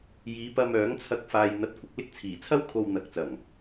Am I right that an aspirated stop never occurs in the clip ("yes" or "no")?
no